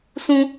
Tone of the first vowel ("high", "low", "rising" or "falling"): high